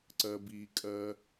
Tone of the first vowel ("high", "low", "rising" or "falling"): high